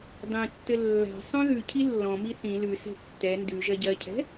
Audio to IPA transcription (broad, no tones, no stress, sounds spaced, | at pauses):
dˤ ĩ tː ɘ lː a̤ sˤ œ̃ ð ʉ cʰ i lː ɔ̃ m i θ ĩ l ʉ s ɛ̤ tː ɛ n d ʉ ʒ ɜ ɟ ɜ cʰ ɛ̤